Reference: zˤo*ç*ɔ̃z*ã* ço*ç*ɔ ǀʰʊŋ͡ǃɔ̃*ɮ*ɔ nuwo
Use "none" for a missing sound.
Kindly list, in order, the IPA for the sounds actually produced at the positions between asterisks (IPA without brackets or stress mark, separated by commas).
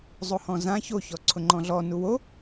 h, ã, ç, ɮ